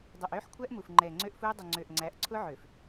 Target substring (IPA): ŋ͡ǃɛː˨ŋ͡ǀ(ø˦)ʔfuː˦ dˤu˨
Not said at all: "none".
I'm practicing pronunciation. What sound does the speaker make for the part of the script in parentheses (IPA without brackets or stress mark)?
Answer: ø˦